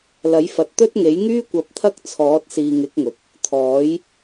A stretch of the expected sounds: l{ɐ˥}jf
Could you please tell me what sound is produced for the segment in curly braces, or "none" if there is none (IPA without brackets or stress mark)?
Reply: ɐ˨˥